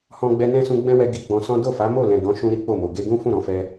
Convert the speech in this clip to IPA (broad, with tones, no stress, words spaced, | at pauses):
hɔ̃˧ɡ͡bɛ˧ nɛ̃˦sũ˧ ɡ͡bɛ̃˦wɛ˧ ɡi˧ɡ͡bɔ̃˧sɔ̃˦ do˦˨fa˨˦ mo˦˨lɛ̃˨ dɔ̃˨˦ ʃũ˧ ɾi˦k͡po˦˨mo˨ ɡe˧ɡũ˦ fũ˦˨ɾɔ̃˨˦fɛ˧